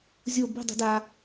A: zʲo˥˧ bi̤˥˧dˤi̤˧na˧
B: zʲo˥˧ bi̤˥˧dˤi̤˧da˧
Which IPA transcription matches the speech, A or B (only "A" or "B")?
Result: B